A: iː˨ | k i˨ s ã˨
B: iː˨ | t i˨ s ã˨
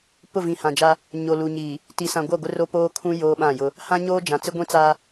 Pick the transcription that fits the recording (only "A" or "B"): B